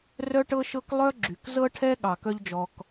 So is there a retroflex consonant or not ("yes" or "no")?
yes